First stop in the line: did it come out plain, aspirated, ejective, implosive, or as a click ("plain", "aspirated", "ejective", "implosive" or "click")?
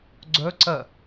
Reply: click